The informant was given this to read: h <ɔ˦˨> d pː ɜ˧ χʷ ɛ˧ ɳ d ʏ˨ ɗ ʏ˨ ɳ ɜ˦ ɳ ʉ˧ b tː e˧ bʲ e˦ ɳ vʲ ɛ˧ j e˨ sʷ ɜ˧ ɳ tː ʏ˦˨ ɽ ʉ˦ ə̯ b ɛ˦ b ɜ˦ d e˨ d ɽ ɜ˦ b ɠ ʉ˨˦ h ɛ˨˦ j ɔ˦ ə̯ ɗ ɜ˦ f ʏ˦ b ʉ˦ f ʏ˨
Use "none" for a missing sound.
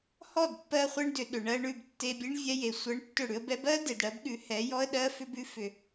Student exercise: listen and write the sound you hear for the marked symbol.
ɔ˦˨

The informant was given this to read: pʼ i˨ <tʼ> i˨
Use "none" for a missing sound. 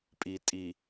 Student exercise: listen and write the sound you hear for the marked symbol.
tʼ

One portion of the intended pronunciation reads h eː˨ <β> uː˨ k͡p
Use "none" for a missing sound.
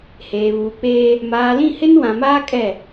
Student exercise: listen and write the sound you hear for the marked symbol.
β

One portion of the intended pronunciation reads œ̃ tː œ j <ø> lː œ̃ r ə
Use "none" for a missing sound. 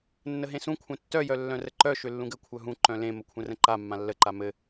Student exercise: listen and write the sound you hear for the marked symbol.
œ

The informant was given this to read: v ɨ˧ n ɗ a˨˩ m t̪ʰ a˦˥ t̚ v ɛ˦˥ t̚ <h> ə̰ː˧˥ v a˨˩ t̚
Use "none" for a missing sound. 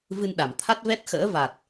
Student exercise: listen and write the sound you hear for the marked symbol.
x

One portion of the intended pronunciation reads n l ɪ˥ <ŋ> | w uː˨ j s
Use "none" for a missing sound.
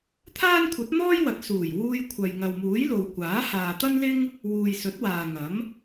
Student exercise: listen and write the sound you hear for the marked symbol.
ŋ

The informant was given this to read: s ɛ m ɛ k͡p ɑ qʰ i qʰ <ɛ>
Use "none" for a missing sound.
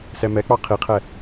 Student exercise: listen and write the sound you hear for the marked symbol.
ɛ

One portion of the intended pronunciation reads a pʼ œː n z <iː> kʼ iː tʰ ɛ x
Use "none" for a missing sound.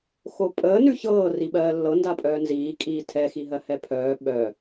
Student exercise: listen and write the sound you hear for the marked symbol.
iː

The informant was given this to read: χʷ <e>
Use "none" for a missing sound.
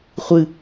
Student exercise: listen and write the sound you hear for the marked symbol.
ɨ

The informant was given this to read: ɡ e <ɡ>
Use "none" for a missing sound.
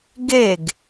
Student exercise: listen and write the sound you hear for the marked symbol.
ɡ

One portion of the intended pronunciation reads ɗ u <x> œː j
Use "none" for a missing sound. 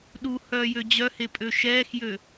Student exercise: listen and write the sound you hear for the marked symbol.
h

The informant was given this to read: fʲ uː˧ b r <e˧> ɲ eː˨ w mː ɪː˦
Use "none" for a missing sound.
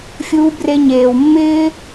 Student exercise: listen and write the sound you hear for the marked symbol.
e˧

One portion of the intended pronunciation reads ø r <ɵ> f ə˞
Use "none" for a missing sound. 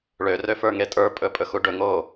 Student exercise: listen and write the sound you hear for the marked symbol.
ø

